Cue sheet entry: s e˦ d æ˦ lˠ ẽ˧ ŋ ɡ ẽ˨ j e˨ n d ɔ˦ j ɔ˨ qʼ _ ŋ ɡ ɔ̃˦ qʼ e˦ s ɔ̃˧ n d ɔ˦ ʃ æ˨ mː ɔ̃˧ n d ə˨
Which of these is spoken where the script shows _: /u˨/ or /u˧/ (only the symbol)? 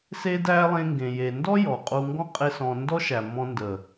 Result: u˧